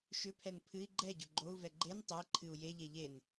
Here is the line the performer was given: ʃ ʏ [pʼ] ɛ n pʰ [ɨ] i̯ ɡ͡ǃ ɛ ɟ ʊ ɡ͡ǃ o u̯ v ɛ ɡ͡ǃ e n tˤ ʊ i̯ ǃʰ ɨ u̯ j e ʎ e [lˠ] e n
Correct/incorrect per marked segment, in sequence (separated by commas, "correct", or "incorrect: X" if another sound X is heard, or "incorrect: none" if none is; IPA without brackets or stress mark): incorrect: pʰ, correct, incorrect: ʎ